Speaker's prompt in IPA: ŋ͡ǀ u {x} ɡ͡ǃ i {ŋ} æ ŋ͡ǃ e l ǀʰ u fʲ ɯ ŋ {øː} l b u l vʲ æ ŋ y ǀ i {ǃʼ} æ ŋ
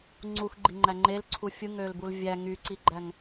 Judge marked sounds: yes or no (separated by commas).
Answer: yes, no, yes, no